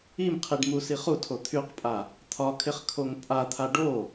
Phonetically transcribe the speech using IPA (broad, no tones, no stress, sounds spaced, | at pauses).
i m qʰ i ɖ m u s i χ u tʰ o t̪ʰ y q pʼ a | t̪ʰ ɒ kʰ ɪ χ kʰ o ŋ pʼ a t̪ʰ a ɖ o